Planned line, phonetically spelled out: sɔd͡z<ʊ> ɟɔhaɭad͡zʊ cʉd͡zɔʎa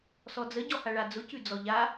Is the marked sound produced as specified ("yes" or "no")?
no